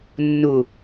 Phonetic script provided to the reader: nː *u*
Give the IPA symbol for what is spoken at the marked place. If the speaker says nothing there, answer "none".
u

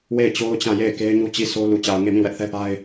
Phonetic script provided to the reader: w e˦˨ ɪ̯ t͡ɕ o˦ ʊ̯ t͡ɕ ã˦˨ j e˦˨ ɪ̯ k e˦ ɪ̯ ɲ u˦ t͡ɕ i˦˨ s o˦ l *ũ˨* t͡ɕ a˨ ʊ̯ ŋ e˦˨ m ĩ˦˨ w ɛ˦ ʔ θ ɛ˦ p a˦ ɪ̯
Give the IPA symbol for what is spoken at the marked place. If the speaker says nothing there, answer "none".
u˨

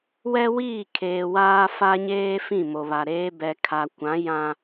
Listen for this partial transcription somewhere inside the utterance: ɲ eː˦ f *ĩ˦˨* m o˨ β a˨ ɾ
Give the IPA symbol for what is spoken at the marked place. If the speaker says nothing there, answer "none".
ĩ˦˨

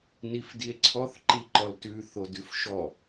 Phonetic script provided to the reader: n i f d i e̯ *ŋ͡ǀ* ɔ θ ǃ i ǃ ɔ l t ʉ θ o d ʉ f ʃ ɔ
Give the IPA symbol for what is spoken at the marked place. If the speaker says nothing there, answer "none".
ǀʰ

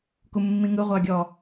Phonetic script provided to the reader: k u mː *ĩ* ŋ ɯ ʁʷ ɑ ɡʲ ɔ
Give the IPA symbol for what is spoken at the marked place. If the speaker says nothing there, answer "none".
ĩ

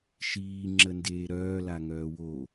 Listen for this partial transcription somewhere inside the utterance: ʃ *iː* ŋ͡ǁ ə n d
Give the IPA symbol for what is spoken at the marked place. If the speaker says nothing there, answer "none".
iː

